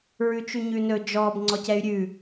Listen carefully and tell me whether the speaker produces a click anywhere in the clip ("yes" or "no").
yes